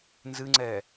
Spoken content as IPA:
n z ɨ ŋ͡ǀ ɛ

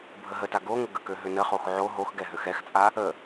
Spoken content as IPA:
bʱ ə ɦ ə t a ɡ o ŋʷ ə ɡ ə k ø ɦ ø n ə χ o x ʕ o ɦ o x ɡ ɛ ɦ ø x ɛ x t͡sʼ a | ə

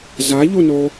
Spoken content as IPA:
z a ʎ u n o

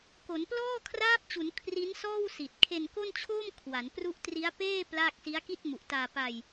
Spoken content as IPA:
k o˩˦ n p l ɔː˥˩ kʰ r aː˦˥ p̚ t͡ɕ u˩˦ n kʰ r i˦˥ n s ɔː˥˩ w s i˨˩ t̚ kʰ e˧ n k o˥˩ n t͡ɕʰ oː˥˩ m kʰ w a˩˦ n p r u˦˥ ʔ t r i˦˥ a̯ p eː˥˩ p l aː˥˩ k̚ s i˦˥ a̯ k i˥˩ t̚ m u˨˩ ʔ t aː˧ p a˧ j

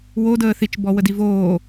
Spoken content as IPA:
w o d əː θ i t͡ʃ b ɔ w ə d i v oː

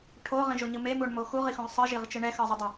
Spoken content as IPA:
ʈʰ o ʁ ĩ ʒ o ɲ ɯ m e m u ɳ m o x u ʁ i x õ ʁ sˤ ɯ ʒ i ʁ t͡ʃ ɯ ɳ ɛ x ʌ zˤ ɯ dˤ a

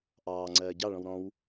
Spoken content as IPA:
ʔ ɑː ŋ͡ǀ ɜː ɟ ɑ ɭ ɔ̃ w ɾ ɔ̃ w

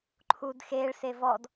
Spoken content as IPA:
ǃʰ u d x e ɭ s e v ɔ d

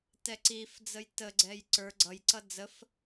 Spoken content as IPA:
t ɛ ǀ i f d͡z ə j t ə ɡ͡ǀ ɛ j ǀ ə˞ ɡ͡ǀ ʌ j ǀ ʌ d͡z ə f

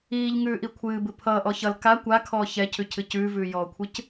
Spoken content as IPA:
iː ʎ ŋ ʉː ʔ i kʷʰ ɨː b ɨ pʰ ʌː ʔ ɔ ç ʌ l k a kʷ a kʰ ɔː ç ɛ cʰ ʉ cʰ ɨ c ʉː v ʉː j ɔː kʷʰ ɨ c

